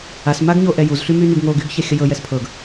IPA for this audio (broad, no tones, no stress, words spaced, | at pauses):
as maɡɲoʔɛjuz ɬymynyɡŋo ɡyɡçɛxʲəjɤ jɛspʰɤɡ